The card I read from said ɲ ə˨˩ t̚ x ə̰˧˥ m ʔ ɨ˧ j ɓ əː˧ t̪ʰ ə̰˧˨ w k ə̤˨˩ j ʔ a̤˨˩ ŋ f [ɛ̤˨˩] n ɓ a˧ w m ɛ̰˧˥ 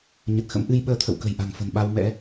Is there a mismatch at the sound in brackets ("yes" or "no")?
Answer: yes